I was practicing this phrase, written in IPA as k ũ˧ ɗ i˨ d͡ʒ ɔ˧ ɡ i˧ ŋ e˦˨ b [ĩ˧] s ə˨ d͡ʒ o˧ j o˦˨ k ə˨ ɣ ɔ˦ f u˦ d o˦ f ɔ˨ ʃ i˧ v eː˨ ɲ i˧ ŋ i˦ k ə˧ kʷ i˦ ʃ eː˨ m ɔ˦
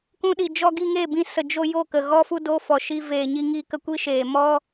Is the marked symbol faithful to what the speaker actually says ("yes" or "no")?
yes